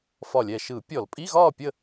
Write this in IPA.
f ɒ˧˩ lʲ ɛ˧˩ ʃ ɯ˧˩˧ pʲ ɔ˧˩˧ l pʼ i˧˥˧ ɣ ɒː˥˨ pʲ ə˥˨

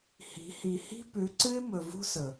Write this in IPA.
h i̤˨˦ h i˨ h i̤˦ p ʉ˨˦ ǀ ɨ˦ ɪ̯ m ɵ˨ v ṳ˦ s ɵ˨

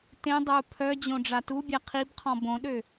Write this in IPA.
t ẽ dˤ œ u̯ pʰ œ d͡ʑ õ ɖ͡ʐ a t u bʲ a qʰ i b qʰ ɔ̃ b õ ɗ ø

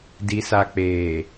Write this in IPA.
d i˨ s a˨ k͡p eː˨

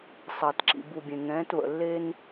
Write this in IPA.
sˤ ɐː˨ t ǁ ḭ˨ b u˨ bʲ ẽ˨ ŋ ɛ̃ː˨˦ t β ə̰˨ lː e˦ n

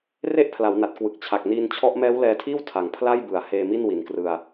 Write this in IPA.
r e˥˩ ʔ pʰ l a˩˦ w n a˨˩ t̚ k w ɯ˨˩ k̚ t͡ɕʰ a˨˩ k̚ n iː˧ n t͡ɕʰ ɔ˦˥ ʔ m ɛː˦˥ w l ɛː˧ tʰ iː˥˩ w tʰ a˨˩ ŋ pʰ l a˥˩ j b ɯ˩˦ a̯ h eː˧ m i˥˩ n w i˨˩ n k r ɯ˧ a̯

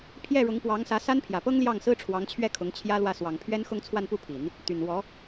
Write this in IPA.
pʰ j ɛ˥˩ ɻ ʊ˧˥ ŋ p w ɑ˧˥ ŋ s ä˧˥ s a˥ n pʰ j ä˨˩ p ɤ˥ ŋ l j ɑ˥˩ ŋ s ɹ̩˥ ʈ͡ʂʰ w ɑ˧˥ ŋ t͡ɕʰ ɥ ɛ˥˩ kʰ ʊ˧˥ ŋ t͡ɕʰ j ä˥ l w ä˥˩ s w ɑ˨˩ ŋ pʰ ɥ ɛ˥ n x ʊ˥˧ ŋ t͡sʰ w a˥˧ n p u˥˩ pʰ i˨˩˦ n | t̪ y˨˩ n w ɔ˧˥

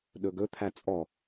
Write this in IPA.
ɗ ɵ ɡ ɵ t̪ʰ æ t͡sʼ ɔ

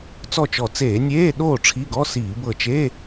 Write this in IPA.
t͡s ɔ˥˨ t͡ʃ ɔ˧˩ t͡s eː˧˩˧ nʲ eː˧˥˧ ɗ oː˥˨ ʈ͡ʂʰ i˧˥˧ ɡ ɔ˧˥˧ s iː˧˩˧ b ɤ˧˩ t͡ʃ eː˧˥˧

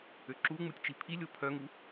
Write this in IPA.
ø ǁ u ŋ͡m u tʲ t͡ʃ i pʰ i lʲ o pʰ œ ŋ u

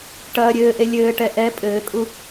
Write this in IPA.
ʈ ɐː ɾʲ ɘː ʔ e lʲ ɘː ʈ ɛ ʔ ɛ pʼ ɘː kʼ u

